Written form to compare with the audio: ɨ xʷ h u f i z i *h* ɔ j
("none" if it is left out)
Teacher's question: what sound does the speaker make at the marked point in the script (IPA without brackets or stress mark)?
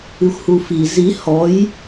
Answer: h